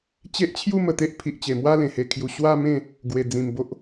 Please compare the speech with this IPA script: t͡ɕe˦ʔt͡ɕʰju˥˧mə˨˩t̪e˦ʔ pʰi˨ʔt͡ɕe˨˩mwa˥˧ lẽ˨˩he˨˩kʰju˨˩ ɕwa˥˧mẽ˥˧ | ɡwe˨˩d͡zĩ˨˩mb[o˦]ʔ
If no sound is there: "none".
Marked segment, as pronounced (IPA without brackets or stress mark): o˦